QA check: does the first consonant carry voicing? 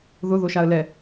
yes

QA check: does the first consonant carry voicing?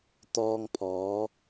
no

